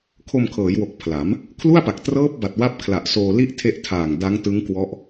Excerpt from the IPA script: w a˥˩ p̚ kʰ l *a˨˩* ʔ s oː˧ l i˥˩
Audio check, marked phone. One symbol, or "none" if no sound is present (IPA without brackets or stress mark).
a˨˩